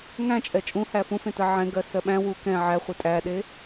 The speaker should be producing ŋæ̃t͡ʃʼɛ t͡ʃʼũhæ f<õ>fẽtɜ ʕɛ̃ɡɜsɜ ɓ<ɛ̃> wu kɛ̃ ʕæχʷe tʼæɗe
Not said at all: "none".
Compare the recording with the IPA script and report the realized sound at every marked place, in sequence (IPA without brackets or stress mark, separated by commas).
ũ, æ̃